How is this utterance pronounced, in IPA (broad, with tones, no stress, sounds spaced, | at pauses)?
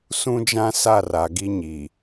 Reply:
s ũ˦ d͡ʒ ã˦ s a˦˨ r a˨ ɡ i˦ ɲ i˨